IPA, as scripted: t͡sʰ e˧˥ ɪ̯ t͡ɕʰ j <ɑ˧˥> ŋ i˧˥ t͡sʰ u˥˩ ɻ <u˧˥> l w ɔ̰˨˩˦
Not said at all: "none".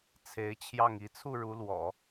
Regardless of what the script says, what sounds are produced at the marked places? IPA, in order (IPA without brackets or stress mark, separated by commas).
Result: ɑ˥˩, u˧˥